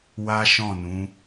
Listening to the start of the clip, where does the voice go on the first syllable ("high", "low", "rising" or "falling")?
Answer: high